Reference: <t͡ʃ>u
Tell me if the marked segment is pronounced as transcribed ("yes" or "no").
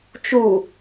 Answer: yes